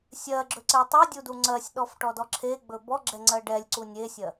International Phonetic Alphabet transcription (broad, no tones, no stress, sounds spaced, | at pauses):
sʲ ɜ ɡ͡ǁ ɵ ǀ e tˤ ɛ dʲ u d u ŋ͡ǀ ɜ sʲ ɗ ɔ f ʈ ɔ d ɔ ǁʰ e ɡ͡b ɵ b ɔ ɡ͡ǁ ɛ ŋ͡ǀ ɜ ɖ ɛ lʲ ǀ u nʲ e sʲ ɜ